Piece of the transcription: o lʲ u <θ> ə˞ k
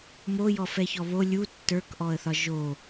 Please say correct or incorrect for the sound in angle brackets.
incorrect